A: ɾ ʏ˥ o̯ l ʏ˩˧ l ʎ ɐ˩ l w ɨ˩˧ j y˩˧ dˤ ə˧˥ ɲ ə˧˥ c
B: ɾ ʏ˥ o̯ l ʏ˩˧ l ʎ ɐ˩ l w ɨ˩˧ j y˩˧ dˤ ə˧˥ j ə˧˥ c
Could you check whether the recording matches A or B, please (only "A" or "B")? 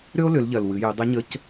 A